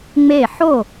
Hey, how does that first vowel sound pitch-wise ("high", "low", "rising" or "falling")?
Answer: falling